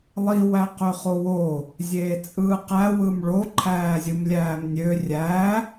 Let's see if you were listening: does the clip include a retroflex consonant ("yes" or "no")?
yes